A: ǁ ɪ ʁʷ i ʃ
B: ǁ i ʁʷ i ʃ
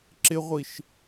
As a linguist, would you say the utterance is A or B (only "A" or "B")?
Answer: A